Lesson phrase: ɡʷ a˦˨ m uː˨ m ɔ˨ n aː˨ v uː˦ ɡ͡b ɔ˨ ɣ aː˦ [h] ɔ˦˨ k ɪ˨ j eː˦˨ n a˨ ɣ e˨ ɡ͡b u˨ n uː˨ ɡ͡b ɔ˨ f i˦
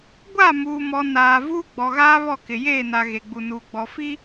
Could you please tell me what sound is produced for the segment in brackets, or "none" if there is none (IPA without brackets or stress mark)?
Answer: β